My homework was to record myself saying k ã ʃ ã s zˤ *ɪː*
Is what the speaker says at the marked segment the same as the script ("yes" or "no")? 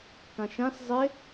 no